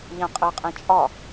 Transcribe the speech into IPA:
ʎ ã qʼ ɜ qʼ ɛ̃ t͡ʃʼ ɒ

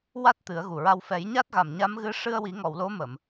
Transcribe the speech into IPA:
w a˦˥ t̚ t̪ ɨ˨˩˦ ə̯ ɣ u˨˩ ɹ a˧ w f ɛ˨˩˦ j ɲ a˦˥ t̚ ɣ a˨˩ m ɲ a˧˥ m ɣ ɨ˧ ʂ ɨ˧ ə̯ w i˨˩˦ ŋ ɔ˨˩˨ w l o˧˥ m ə˨˩˨ m

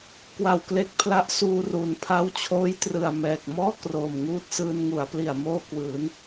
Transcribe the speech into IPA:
k w a˨˩ w k l e˦˥ k̚ pʰ l a˦˥ ʔ s uː˧ r uː˩˦ n pʰ a˦˥ w t͡ɕʰ oː˦˥ j t r ɯ˨˩ a̯ m ɛː˨˩ k̚ m ɔː˥˩ k r oː˨˩ m ŋ uː˥˩ t̚ s ɯː˧ n ŋ u˩˦ a̯ p l i˨˩ a̯ m oː˥˩ k w ɯː˩˦ n

